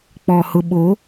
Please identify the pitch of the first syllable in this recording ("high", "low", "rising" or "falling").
low